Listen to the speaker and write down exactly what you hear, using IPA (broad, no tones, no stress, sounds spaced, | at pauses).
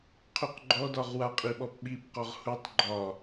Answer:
qʰ u q ɡ͡ǃ ɔ d ɒ ʁ w a qʼ i ɓ ɔ p ɓ i p q ɔ ʁ h u tˤ ɡ͡ǃ ɒ